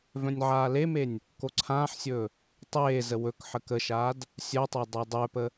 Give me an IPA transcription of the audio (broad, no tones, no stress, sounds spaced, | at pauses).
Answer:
v œ̃ nʲ ʕ aː l e m e nʲ | k o ǀʰ ãː ħ sʲ ɵː | tˤ eː z ə w ɵ k ħ ə k ə ʃ aː d | sʲ œ tˤ a dˤ e dˤ œ p ə